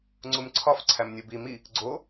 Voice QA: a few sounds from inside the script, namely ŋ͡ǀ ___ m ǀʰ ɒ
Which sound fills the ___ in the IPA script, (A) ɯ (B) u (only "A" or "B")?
B